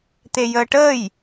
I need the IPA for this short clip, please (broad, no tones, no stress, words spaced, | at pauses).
t̪ejəːʈəːj